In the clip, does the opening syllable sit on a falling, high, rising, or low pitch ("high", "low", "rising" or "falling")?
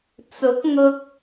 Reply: rising